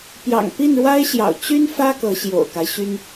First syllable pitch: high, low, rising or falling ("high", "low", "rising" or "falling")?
low